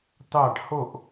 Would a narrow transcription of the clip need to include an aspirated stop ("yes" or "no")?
no